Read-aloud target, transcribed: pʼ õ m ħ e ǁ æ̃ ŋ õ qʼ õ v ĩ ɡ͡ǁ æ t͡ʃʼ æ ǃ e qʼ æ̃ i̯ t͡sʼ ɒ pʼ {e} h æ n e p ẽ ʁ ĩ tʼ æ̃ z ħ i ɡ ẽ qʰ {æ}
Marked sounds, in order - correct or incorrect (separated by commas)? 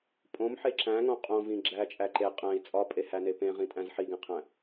correct, incorrect